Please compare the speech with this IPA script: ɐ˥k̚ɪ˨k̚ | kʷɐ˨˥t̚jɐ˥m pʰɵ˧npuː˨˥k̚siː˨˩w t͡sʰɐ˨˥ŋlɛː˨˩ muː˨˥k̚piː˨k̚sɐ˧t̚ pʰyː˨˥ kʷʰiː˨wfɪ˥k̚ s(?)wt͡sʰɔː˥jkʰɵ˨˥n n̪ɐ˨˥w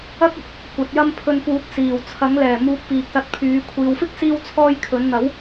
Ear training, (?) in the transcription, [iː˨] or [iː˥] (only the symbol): iː˥